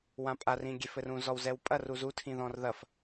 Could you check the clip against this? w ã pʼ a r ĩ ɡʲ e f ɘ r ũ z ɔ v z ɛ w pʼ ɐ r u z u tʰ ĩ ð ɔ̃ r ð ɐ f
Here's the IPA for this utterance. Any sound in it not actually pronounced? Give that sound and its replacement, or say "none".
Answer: v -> w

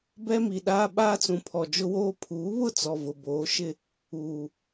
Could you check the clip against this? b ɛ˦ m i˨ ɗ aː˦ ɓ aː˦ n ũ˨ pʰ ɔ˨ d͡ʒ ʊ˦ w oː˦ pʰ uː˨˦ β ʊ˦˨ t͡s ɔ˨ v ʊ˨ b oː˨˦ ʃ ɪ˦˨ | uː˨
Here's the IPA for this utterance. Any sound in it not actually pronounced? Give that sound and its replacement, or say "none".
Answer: n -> t͡s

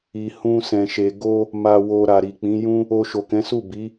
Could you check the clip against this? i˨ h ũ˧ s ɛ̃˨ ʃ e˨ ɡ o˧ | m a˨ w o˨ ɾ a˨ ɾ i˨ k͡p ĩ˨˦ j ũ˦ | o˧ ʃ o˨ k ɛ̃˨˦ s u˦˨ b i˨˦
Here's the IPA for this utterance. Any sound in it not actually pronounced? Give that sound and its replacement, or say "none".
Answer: none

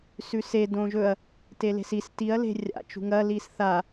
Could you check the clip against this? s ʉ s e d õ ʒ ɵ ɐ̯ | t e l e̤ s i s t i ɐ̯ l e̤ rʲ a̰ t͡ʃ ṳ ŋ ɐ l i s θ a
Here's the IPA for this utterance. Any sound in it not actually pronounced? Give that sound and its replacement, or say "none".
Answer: none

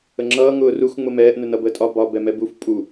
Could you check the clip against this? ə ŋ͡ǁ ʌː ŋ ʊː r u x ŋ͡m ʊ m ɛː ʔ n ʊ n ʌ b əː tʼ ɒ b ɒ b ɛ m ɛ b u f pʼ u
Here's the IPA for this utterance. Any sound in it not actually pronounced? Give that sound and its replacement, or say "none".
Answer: none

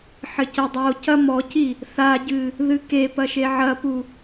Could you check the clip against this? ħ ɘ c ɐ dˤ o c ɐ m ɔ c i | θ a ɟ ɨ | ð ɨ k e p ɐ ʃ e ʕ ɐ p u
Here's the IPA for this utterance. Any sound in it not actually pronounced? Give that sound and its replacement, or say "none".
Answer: none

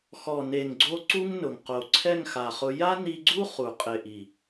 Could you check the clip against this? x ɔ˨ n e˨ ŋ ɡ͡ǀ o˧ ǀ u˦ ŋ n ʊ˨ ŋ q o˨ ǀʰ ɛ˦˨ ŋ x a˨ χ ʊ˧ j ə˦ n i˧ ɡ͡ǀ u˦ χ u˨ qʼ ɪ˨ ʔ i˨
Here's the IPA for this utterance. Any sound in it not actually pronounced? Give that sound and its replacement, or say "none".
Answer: ə˦ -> a˦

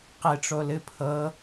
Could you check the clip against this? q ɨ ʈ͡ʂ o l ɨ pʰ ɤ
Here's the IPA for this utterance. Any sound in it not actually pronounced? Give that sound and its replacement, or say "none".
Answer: none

